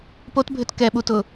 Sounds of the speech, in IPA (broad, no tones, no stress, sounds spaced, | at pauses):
p o t bʱ ʏ t k ɛ ɓ u t ʊ